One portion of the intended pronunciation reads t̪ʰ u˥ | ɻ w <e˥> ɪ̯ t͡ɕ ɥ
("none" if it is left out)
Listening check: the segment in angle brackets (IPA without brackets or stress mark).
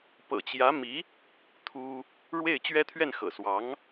e˥˩